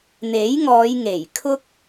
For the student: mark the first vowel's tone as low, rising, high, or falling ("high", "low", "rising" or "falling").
rising